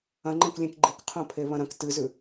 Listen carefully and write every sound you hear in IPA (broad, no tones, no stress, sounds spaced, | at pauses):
ɐ̃ ŋ͡ǃ ẽ k lʲ ẽ k ɡ͡ǃ i k qʰ õ pʰ e β ɐ̃ ɾ ɐ̃ k t ɨ z ʉ